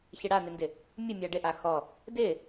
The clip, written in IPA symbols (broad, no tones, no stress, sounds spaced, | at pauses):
ç ɪ ɽ a n ɪ n d ɪ | mʲ ʊ mʲ a ɖ ɪ ʔ a x ɔ | d ɪ